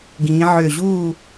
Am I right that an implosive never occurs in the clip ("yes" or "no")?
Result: yes